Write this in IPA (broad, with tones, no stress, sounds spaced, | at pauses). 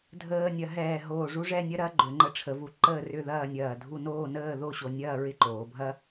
dʱ əː˧ nʲ ɐ˩˧ ɦ ɛː˧˩ ɦ oː˧˩ ʐ u˥ ʐ ɛ˥˧ nʲ ɐ˥ ɾ ɐ˥ ɡ͡ǃ ʏ˩˧ ŋ͡ǃ ə˧ ʈ͡ʂʰ ə˩˧ v u˩˧ ǃ əː˥˧ r ʏ˥˧ ð ɐː˥˧ nʲ ɐː˧˩ dʱ u˥˧ n oː˥˧ n əː˥˧ ð o˥˧ ɕ o˧ nʲ ɐː˥˧ ɹ ɪ˥ ǃ oː˩˧ bʱ ɐ˥